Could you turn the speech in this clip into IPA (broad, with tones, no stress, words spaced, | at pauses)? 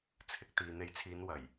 t͡sʰɪ˧k̚t̪iː˨ n̪e˨˥jt͡sʰiː˨˧n wɐ˨˩j